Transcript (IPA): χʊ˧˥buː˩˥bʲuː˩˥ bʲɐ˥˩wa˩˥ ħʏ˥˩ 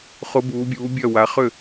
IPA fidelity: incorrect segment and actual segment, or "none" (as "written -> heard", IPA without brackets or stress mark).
ħ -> χ